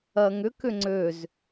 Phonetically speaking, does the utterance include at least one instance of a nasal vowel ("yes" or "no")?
no